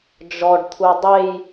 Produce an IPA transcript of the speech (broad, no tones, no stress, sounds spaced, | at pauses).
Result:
d͡ʒ ɔ ɖ t̪ʰ u dˤ e j